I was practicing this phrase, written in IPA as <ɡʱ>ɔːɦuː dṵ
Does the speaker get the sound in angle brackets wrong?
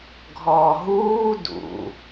no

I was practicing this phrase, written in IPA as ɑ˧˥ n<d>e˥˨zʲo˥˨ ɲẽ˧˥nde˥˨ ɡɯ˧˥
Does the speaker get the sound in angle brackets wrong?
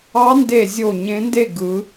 no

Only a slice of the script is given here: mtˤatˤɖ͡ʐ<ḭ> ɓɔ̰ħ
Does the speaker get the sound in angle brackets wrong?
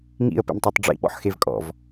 no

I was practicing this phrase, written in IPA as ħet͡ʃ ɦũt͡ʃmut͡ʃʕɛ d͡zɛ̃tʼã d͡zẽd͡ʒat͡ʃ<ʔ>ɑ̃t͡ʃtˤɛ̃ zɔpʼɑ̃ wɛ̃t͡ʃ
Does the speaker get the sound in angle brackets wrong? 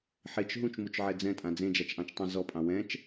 no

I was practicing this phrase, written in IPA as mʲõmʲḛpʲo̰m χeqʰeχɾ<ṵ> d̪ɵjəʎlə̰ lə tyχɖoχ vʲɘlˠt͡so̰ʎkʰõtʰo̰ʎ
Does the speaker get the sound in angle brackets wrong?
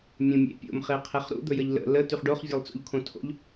no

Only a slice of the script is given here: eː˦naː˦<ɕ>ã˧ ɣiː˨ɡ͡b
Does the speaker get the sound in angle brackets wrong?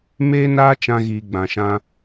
yes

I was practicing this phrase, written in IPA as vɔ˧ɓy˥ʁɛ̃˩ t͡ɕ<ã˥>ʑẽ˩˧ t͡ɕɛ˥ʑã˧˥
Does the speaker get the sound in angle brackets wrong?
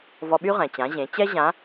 yes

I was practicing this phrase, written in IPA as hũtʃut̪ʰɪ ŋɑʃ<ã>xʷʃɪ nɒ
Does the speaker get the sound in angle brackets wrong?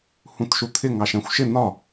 yes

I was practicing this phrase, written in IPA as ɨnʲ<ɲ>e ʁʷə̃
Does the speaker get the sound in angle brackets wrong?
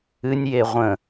yes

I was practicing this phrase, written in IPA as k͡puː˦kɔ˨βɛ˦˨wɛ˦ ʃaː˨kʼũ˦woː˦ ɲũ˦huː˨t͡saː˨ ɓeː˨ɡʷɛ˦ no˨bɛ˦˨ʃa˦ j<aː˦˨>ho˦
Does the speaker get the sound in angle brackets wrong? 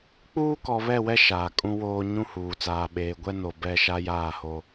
no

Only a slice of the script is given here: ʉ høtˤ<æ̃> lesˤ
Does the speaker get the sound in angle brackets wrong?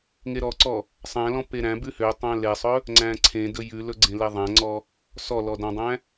no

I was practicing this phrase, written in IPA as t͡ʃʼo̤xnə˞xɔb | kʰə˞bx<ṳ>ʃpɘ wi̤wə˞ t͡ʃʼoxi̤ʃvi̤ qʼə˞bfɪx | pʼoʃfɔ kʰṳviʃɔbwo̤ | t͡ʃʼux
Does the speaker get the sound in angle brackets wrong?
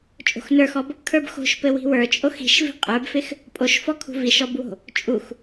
yes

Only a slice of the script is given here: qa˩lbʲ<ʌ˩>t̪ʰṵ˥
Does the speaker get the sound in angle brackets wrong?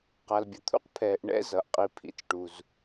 no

